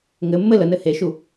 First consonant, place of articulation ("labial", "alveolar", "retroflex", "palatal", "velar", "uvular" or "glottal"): velar